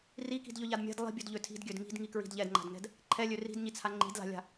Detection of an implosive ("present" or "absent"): absent